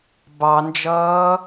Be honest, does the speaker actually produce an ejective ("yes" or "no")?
no